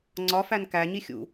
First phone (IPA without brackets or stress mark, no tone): ŋ͡ǀ